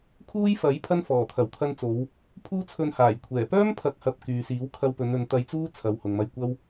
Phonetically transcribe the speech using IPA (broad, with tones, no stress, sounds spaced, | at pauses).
kʰ uː˥ j f ɐ˨˥ j pʰ ɐ˥ n f ɔː˨˩ t̪ʰ ɐ˨˩ w t̪ʰ ɐ˧ n t͡s o˨˧ w | pʰ uː˥ t͡sʰ ɵ˧ n h aː˨˩ j kʷʰ ɛː˨˩ p œː˥ m pʰ ɐ˨˥ k̚ h ɐ˨ p̚ k yː˨ s iː˨˥ w kʰ ɐ˧ w p ɵ˨˧ n ɵ˨˧ n t̪ ɐ˧ j t͡s uː˥ t͡sʰ ɐ˨ w h ʊ˨ ŋ m ɐ˧ j kʷ ɐ˥ w